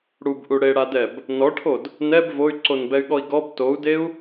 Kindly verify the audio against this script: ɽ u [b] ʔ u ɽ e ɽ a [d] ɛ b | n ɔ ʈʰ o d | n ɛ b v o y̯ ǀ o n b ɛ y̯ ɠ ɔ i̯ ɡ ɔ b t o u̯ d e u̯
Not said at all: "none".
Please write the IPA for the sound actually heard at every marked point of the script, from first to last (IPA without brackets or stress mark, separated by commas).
b, d